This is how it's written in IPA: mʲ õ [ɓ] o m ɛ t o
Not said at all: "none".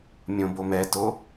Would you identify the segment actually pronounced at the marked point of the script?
b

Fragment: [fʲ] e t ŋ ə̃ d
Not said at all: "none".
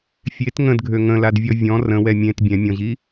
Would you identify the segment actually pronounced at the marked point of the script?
fʲ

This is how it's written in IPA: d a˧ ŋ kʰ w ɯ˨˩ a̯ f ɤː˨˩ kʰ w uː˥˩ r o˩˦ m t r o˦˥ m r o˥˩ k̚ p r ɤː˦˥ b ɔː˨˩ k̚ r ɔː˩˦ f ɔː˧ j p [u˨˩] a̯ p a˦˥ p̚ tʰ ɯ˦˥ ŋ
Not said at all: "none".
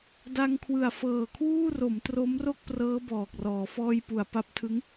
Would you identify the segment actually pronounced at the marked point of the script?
u˨˩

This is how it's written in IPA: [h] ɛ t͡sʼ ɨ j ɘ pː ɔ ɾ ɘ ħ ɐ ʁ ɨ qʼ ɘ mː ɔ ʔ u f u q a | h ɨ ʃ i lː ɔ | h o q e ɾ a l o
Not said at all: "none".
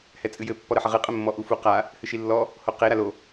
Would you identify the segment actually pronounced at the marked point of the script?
h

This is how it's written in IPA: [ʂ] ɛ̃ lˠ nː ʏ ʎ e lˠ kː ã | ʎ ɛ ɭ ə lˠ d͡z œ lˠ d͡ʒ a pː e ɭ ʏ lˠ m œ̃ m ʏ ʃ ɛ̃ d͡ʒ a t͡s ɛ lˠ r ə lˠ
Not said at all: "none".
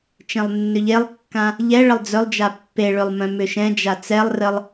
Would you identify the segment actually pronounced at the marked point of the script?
t͡ʃ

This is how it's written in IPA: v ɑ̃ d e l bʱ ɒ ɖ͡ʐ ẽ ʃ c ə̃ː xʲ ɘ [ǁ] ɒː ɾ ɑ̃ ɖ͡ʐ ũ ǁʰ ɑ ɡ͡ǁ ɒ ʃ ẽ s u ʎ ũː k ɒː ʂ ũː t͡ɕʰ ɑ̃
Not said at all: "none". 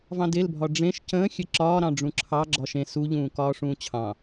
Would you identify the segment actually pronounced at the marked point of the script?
ǁ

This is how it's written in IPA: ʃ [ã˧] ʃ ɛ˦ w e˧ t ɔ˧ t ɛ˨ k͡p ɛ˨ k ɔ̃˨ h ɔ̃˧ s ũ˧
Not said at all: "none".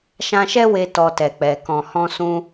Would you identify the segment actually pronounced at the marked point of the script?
ã˧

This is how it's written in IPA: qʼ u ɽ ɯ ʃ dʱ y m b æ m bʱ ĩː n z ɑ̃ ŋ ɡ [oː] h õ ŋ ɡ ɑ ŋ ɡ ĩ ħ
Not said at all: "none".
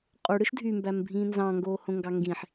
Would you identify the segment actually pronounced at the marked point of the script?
oː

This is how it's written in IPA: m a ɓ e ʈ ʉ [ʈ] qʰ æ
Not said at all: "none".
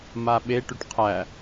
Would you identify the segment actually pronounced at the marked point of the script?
ʈ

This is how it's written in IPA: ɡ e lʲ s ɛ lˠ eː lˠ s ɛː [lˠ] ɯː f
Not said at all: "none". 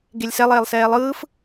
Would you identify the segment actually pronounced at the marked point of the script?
lˠ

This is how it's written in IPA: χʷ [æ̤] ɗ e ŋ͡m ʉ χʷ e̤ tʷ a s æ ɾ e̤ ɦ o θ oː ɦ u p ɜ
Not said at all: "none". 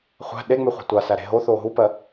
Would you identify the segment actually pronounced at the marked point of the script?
æ̤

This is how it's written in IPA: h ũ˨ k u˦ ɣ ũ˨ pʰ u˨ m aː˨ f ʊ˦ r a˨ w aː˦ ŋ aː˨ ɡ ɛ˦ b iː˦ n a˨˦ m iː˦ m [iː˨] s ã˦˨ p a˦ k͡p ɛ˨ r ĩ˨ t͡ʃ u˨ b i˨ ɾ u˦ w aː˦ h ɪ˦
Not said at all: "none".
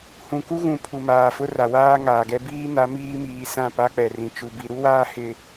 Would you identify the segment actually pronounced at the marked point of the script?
iː˨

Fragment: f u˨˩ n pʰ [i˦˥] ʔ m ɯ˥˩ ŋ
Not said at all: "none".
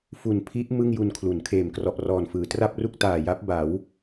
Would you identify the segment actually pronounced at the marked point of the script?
i˦˥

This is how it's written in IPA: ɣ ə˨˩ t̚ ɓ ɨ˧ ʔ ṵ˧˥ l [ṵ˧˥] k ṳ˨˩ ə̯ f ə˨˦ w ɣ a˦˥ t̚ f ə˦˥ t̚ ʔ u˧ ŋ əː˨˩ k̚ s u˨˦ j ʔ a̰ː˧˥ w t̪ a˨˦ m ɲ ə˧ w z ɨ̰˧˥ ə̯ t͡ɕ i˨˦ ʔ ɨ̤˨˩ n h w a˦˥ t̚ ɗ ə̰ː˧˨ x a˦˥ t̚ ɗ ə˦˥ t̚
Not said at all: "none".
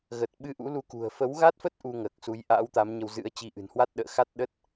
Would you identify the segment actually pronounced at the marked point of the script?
u˧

